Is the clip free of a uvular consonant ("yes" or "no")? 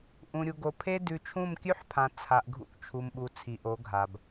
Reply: yes